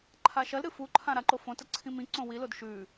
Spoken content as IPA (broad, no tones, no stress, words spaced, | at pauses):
ǃʰaʃɐlɾɨ fuǃʰã ɾaǃofõtɐ ǀʰĩmĩǀõ wilod ʃʉ